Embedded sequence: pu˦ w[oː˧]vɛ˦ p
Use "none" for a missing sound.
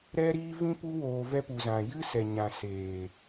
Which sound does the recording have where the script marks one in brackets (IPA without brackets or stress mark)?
oː˧